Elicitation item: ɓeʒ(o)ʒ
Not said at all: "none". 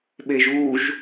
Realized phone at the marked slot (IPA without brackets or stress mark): u